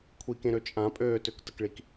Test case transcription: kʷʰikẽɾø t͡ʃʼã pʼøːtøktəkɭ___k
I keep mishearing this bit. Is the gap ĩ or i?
i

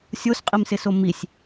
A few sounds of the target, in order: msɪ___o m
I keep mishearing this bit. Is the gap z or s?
s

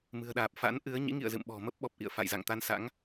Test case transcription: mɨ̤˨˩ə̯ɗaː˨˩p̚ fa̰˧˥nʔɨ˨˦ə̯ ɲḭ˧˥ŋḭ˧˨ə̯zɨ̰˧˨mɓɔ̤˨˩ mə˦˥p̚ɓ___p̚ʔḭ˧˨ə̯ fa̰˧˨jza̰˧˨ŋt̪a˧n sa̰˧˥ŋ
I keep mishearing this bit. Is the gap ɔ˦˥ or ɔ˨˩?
ɔ˨˩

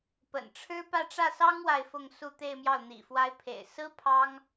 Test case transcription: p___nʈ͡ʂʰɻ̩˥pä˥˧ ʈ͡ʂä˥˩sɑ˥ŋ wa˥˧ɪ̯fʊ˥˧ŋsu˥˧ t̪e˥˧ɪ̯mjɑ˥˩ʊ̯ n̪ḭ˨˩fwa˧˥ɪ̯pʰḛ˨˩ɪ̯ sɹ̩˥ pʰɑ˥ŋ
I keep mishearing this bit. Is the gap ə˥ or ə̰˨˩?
ə̰˨˩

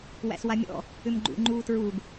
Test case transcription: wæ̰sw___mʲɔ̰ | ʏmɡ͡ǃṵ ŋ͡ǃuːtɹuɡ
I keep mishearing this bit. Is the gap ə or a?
a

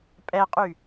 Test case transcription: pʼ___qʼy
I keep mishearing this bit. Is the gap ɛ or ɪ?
ɛ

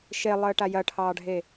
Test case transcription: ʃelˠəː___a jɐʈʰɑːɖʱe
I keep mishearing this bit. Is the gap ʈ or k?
ʈ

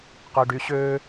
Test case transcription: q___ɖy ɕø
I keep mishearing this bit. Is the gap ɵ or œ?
œ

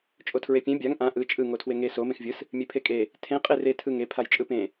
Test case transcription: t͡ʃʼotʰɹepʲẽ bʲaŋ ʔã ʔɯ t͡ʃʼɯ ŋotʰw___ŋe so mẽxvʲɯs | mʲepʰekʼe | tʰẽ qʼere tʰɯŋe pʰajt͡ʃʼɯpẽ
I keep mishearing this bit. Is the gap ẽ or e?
e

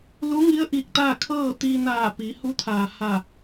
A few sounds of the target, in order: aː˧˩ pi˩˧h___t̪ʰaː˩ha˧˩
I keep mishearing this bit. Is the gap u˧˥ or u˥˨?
u˧˥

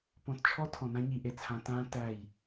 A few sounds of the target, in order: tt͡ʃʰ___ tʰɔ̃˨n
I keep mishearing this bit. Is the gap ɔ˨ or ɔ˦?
ɔ˦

